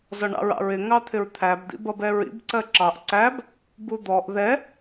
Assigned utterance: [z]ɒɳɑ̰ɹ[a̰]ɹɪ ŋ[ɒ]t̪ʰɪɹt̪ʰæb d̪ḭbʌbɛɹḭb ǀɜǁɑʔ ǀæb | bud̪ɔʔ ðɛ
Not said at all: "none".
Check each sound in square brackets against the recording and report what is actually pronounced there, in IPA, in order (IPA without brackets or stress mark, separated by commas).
z, ɑ̰, ɑ